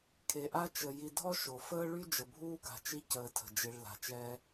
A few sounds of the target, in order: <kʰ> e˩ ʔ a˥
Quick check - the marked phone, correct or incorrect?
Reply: correct